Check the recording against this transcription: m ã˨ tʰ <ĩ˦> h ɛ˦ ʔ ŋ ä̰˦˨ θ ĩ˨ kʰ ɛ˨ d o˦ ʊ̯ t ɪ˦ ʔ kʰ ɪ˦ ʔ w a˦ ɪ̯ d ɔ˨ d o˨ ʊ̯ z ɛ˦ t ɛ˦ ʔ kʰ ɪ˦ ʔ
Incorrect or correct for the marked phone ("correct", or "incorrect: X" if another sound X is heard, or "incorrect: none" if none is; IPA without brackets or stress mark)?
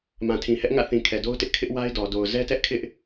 incorrect: ĩ˨